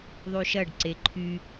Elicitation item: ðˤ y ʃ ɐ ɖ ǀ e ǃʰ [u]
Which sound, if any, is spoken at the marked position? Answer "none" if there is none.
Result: y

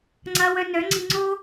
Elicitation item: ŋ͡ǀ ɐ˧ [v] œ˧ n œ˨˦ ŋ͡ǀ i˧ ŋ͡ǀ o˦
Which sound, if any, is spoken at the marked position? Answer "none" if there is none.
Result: w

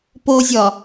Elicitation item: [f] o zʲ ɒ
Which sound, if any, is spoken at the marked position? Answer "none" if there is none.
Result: p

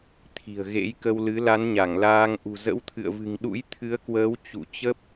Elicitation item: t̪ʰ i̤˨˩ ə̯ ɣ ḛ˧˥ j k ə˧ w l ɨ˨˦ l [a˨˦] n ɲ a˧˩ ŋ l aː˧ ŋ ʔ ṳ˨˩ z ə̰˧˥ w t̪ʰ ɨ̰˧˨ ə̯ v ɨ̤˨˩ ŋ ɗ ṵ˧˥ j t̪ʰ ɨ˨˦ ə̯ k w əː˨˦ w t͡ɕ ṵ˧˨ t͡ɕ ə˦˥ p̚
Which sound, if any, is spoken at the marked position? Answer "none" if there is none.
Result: a˨˦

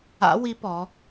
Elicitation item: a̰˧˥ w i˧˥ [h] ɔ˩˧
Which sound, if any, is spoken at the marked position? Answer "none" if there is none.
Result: p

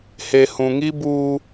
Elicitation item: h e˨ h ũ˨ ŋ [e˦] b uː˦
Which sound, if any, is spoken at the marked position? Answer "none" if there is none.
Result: i˦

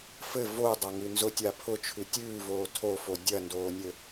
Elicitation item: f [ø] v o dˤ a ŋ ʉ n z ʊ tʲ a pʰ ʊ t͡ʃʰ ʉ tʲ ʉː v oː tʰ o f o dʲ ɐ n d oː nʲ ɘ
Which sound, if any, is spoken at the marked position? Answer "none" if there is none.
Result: ɘ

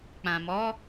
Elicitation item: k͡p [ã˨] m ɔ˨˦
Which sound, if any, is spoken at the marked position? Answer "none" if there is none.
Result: ã˨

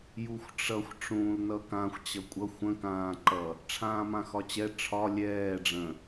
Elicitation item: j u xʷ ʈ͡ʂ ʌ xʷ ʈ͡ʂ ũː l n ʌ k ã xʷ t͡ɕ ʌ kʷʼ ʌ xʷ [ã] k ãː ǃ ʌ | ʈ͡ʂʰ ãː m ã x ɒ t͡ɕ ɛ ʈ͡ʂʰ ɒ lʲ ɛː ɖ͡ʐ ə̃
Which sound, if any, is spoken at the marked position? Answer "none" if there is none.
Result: ə̃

